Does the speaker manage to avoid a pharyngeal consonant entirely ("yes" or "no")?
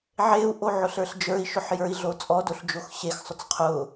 no